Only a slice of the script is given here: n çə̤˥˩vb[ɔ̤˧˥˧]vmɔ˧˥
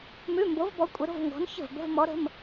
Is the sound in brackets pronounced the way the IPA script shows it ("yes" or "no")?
no